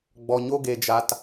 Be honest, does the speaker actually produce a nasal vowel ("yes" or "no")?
no